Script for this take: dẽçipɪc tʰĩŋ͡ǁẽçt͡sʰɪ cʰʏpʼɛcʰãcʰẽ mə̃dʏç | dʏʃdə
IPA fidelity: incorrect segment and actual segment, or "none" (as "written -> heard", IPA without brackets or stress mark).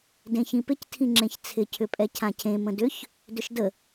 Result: i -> ĩ